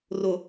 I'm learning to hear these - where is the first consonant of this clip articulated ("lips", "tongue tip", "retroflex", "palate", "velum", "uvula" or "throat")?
tongue tip